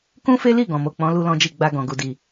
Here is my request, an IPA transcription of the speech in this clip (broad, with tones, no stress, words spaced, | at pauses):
kũ˦fe˦li˦˨ ɡɔ̃˨mo˨k͡pɔ̃˨˦ lu˦lɔ̃˦d͡ʒi˦˨ ɡ͡ba˧ ɡɔ̃˨ɡu˨di˨